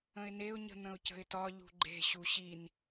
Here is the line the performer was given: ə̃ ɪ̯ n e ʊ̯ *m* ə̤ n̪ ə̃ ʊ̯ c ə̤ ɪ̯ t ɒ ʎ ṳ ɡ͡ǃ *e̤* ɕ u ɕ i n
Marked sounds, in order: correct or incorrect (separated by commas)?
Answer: incorrect, correct